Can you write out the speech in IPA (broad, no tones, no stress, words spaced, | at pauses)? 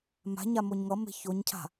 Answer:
ma̤ɲa moɲŋʌme̤ çoɲcʰa̤